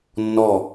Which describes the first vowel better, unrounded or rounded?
rounded